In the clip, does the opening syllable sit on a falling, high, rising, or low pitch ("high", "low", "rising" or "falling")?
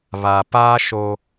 low